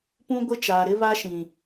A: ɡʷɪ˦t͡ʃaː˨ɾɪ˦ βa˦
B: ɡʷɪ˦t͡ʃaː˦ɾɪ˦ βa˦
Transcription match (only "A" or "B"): A